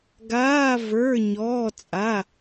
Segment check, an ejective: present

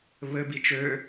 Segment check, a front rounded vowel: present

